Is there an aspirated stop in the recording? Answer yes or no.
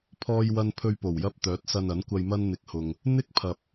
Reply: yes